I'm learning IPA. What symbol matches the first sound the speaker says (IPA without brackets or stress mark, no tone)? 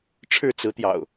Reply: ʈ͡ʂʰ